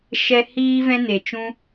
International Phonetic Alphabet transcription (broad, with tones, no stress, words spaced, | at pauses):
ʃɛ˧ hiː˧vɛ̃˧ne˨t͡ʃũ˧